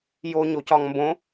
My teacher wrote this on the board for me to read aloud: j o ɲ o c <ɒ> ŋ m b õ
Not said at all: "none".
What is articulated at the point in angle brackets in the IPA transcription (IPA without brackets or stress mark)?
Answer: ɒ